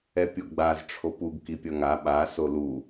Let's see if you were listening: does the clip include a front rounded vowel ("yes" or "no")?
no